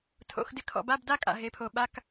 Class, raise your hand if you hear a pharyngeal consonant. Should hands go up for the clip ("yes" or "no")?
no